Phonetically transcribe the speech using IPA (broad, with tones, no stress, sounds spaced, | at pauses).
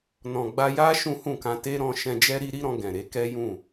n ɔ̃˨ ɡ͡b a˧ j a˦ ʃ ũ˦ h ũ˦˨ k ã˧ t e˦ ɾ ɔ̃˧ ʃ ɛ̃˧ d͡ʒ ɛ˦ ɾ i˦ ɾ i˦ ɾ ɔ̃˧ ɡ ɛ̃˨ ɾ e˨˦ k ɛ˦ j ũ˦˨